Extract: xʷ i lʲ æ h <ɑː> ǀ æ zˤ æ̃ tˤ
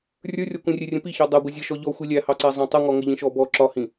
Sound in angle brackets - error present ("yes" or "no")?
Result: yes